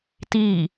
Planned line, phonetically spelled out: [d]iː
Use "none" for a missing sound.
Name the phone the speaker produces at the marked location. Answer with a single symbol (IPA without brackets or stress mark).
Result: t